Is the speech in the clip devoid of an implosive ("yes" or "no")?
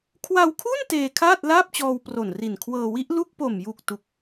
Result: yes